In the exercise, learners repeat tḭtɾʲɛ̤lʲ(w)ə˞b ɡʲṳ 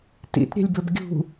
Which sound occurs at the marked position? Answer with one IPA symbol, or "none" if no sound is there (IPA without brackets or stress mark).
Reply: b